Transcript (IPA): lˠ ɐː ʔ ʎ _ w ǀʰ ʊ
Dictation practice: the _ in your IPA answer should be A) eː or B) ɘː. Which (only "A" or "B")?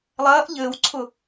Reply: B